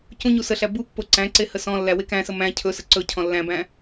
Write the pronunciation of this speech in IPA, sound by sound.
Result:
c ũ ɲ u s ə ɬ æ b u pː o ǀ æ̃ ǀ e h ə s ɔ̃ lː æ w e k æ̃ s ə m æ̃ cʰ ɵ s ə ǀ ɵ cʰ ɔ̃ lː æ̃ b æ̃

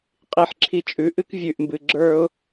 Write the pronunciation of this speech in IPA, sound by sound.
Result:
qʼ i˧˩ ħ ǁʰ i˧ t͡ʃʼ ʉ˩˧ ʔ ɨ˥ k vʲ ʉ˧˩ ʔ m b ɨ˧˩ ɡ͡ǁ ə˞˥ ʊ̯

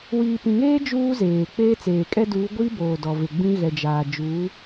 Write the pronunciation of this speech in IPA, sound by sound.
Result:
w iː˨ p ĩ˨ ŋ eː˦ d͡ʒ uː˦ z eː˨ k͡p eː˦ t͡s eː˨ kʼ ɛ˦ d uː˨˦ ɡʷ i˦ b oː˨ d ɔ˨ v ɪ˨ ɡ͡b ĩ˦ ɣ ɛ˨ d͡ʒ aː˨ d͡ʒ uː˨˦

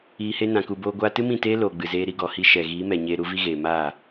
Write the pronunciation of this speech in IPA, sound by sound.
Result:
iː˧ h e˦ n ã˨ k u˨ b oː˧ ɡʷ aː˧ t ɨ˦ m ĩ˦˨ t eː˦ l oː˨ ɡ͡b ɨ˨ z eː˧ ɾ i˧ ɡ ɔ˨ h i˧ ʃ ɛ˨ ɣ iː˨˦ m ɛ˨ ɲ eː˧ ɾ u˨˦ v i˦ ɣ eː˨ m aː˦˨

